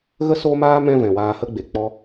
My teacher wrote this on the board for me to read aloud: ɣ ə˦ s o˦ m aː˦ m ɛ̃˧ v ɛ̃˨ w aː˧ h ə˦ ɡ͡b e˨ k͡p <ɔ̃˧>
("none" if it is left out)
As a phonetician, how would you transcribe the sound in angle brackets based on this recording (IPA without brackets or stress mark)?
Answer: ɔ˧